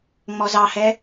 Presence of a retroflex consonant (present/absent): absent